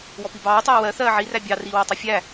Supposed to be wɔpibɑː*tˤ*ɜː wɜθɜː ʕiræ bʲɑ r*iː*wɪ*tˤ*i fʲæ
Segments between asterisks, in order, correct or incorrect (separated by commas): correct, correct, correct